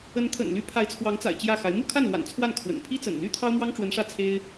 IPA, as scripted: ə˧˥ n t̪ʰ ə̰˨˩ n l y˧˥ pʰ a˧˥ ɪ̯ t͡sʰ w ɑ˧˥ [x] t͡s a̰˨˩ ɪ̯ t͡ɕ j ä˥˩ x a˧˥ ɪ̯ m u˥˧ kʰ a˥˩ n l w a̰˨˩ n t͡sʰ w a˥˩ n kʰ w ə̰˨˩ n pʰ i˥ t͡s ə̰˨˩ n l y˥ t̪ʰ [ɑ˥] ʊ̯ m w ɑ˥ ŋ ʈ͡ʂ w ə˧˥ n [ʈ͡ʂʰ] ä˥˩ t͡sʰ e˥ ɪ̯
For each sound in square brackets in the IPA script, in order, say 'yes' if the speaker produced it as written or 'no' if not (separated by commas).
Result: no, yes, no